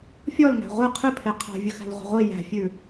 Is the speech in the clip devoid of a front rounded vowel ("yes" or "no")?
yes